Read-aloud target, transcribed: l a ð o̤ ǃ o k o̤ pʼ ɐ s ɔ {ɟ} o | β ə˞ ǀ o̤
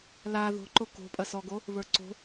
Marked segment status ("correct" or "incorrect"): incorrect